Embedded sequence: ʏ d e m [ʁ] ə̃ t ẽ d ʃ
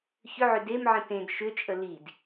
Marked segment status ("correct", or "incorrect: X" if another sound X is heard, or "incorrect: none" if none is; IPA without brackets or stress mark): incorrect: ʕ